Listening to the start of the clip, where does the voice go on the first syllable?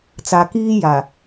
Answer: low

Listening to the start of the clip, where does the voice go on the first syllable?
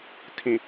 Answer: low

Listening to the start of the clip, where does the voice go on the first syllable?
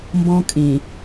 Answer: high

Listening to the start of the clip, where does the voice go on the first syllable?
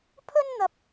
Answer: high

